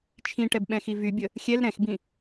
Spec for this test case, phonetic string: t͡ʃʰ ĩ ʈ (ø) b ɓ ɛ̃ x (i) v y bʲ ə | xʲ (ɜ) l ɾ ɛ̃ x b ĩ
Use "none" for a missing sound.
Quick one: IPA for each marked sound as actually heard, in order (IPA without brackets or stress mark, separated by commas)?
ɛ, i, ɛ